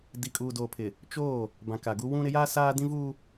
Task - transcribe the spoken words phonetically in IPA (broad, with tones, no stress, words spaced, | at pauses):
di˨kʼuː˨doː˨pʰɪ˨ | t͡ʃoː˦˨ | bã˨ka˨ɡu˦ wũ˦ ɾɪ˨˦jaː˦ saː˦ dĩ˦vuː˦